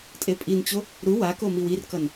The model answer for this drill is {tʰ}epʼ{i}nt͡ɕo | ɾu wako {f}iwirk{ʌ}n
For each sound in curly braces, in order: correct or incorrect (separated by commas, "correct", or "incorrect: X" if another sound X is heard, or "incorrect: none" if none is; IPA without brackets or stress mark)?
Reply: incorrect: tʼ, correct, incorrect: m, correct